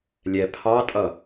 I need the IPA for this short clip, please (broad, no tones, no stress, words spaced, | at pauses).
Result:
lʲɛ pʰɑtʼʌ